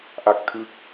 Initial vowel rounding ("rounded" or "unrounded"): unrounded